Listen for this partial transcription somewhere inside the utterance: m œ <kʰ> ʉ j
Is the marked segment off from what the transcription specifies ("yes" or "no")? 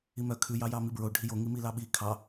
no